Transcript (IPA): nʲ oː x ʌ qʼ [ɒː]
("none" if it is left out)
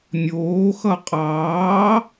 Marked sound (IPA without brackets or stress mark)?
ɑː